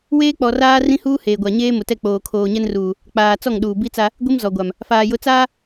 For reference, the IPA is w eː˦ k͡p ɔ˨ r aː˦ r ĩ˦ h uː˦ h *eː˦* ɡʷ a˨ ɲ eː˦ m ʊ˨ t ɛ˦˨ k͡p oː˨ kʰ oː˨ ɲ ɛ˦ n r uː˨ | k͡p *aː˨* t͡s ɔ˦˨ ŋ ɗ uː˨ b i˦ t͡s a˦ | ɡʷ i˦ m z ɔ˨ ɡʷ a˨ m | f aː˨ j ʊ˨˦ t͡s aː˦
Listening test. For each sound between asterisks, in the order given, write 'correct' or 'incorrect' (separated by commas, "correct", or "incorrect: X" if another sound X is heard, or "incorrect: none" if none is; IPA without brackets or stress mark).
incorrect: eː˨, correct